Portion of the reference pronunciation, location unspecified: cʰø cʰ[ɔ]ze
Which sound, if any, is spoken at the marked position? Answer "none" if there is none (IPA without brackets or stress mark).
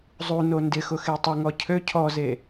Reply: ɔ